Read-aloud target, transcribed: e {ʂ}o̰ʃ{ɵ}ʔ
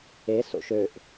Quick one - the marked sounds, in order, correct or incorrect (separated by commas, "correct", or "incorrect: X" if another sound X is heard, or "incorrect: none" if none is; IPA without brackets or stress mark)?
incorrect: s, incorrect: ø